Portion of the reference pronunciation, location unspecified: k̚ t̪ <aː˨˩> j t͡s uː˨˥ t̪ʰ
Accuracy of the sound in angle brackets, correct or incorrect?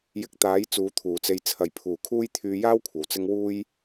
incorrect